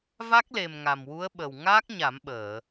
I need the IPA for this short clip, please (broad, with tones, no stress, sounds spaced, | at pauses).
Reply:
v a˦˥ k̚ l e˨˩ m ŋ a˨˩ m w u˧˥ ə̯ ɓ ə˨˩ w ŋ aː˦˥ k̚ ɲ a˨˩˦ m ɓ əː˨˩˨